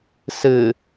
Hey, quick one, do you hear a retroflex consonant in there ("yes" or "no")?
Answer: no